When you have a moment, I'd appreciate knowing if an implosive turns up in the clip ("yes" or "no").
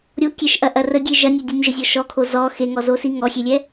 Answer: no